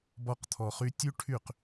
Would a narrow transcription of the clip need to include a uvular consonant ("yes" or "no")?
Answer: yes